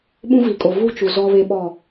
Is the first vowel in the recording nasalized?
yes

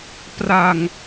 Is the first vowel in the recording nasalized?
no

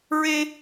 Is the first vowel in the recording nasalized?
no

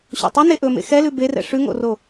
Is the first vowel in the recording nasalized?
no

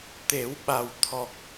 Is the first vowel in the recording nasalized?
no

